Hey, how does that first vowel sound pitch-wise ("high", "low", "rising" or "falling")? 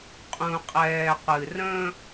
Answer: low